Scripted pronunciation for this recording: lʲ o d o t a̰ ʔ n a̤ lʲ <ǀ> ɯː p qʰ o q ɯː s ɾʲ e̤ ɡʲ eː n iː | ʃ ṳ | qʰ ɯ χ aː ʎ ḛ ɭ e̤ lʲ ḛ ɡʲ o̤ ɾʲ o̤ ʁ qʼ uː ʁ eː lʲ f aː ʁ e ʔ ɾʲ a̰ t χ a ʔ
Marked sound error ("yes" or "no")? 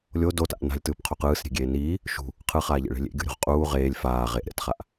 yes